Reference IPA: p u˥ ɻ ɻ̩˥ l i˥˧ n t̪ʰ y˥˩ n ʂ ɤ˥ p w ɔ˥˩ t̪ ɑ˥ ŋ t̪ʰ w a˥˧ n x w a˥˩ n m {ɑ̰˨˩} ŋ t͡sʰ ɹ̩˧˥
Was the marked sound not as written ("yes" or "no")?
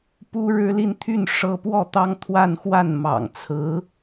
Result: no